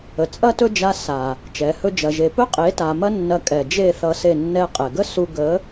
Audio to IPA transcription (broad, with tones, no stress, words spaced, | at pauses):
ə˨t͡sʼɐ˦tɵ˦d͡ʒa˧ sa˨ | t͡ʃɛ˨˦hɵ˦d͡ʒɐ˧ʒe˧ pɵ˦qʼe˨˦ta˨ mɐ˦nːɐ˧ kʼɛ˨d͡ʒe˦˨θʌ˧ se˦˨nːɛ˦ qʼɛ˨ɡə˦su˧ ɡə˨˦